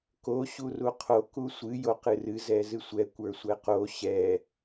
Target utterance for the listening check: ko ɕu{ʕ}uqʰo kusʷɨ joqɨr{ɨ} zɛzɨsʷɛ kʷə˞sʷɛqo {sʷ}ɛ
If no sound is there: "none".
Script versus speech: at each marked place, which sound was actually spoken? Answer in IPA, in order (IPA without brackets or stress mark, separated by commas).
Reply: r, ɨ, ɕ